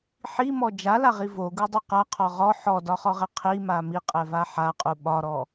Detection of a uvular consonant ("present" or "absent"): present